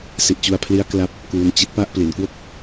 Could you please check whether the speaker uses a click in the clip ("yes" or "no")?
no